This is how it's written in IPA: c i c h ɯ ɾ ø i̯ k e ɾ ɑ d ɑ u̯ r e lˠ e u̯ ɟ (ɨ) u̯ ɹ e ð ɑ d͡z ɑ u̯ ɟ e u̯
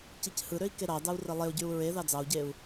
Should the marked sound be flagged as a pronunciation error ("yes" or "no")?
yes